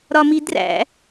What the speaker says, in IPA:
ɾɒmidræ̰

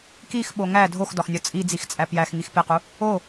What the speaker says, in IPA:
kixɓo ŋæ dʱoxdɒxnʲɒ t͡sʼid͡zixt͡sʼæ pjæxŋix pequ | o

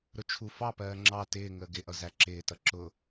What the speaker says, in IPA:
ɾʊt͡ʃʰu fɑpɜː ŋ͡ǁɑ tɪː ŋəːɡɪʔʌ zæǁɪːtʌ ǁʊ

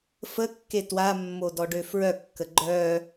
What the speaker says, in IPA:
fəkːe twamːodɔɖø fɹœkːə ɡ͡ǃœ

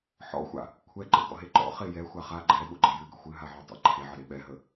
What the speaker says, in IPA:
ħɔ̰xʷa̰ | kʷʰɛ ǃə̰ ɡɔ̰ɦeǃɔ̰ χejɛ xʷaχa ɡ͡ǃɛɓʊ ɡ͡ǃəjɨɡə̰ xʷɨɦaʕɔ tˤə̰ ǃʰeʕəɾe ɓɛɦə

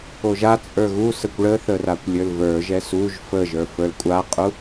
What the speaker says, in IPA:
oʒat͡sʼə˞ ɣusəkʷ ɭəθə rakʷlʲə˞lvə˞ʒɛ suʒ fəʒə˞ fə˞lkʷʼaqʼu

